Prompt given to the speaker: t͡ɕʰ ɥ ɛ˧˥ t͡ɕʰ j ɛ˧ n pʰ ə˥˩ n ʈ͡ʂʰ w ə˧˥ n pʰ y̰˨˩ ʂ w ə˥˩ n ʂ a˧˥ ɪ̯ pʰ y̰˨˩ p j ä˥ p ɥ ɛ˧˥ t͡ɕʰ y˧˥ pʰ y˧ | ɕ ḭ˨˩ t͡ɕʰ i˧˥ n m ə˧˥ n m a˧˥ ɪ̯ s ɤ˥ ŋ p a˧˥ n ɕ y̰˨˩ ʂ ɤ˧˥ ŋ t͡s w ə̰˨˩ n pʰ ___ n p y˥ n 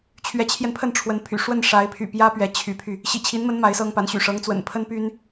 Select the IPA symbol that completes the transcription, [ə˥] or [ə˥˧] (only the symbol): ə˥